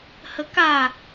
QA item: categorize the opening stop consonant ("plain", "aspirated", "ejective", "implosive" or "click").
plain